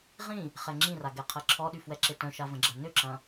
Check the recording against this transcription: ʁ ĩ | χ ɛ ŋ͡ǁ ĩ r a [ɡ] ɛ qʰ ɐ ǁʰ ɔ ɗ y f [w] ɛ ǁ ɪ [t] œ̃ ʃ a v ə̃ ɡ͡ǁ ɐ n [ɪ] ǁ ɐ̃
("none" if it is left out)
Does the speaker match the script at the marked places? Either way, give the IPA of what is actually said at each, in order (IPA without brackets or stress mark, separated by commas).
ɡ, w, t, ʏ